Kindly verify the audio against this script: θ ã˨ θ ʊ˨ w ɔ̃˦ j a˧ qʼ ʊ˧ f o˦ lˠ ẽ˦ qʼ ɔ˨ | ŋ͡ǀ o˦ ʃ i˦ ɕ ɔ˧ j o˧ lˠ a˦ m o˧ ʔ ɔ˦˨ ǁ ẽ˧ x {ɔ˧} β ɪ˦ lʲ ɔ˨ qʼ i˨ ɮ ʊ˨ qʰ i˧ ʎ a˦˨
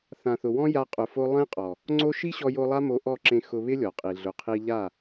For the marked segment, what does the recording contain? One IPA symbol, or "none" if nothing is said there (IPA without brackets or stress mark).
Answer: ʊ˧